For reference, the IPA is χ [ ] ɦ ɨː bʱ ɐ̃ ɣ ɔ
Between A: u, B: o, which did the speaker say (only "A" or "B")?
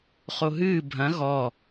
B